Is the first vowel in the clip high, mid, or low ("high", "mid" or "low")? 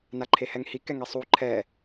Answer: low